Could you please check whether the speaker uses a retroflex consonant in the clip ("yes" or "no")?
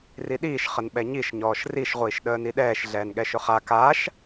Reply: no